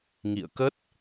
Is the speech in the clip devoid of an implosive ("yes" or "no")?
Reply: yes